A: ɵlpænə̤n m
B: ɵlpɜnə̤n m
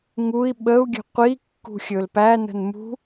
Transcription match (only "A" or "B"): A